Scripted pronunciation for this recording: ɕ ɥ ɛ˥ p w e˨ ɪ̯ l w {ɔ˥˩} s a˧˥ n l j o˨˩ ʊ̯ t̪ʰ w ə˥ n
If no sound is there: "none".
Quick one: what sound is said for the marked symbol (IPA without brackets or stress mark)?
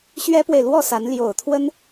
ɔ˥˩